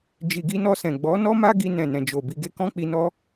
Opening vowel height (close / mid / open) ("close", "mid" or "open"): close